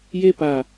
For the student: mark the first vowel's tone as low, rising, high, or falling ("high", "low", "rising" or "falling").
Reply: high